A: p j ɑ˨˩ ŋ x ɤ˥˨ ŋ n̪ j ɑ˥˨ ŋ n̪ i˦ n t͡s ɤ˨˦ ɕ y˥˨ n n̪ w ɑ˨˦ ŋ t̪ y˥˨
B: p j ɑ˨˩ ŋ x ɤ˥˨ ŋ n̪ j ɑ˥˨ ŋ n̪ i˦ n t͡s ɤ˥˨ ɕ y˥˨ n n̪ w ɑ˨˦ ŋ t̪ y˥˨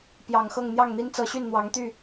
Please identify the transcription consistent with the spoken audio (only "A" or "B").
A